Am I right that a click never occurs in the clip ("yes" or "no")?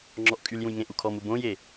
no